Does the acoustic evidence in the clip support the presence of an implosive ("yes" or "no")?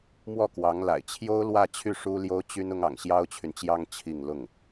no